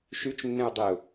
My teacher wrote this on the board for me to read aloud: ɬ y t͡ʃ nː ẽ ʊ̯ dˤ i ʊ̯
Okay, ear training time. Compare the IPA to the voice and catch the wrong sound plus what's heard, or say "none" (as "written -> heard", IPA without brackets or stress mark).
ɬ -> ʃ